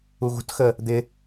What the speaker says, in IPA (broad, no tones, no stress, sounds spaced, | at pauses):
u ɣ ṳ t x ə | d̪ ɪ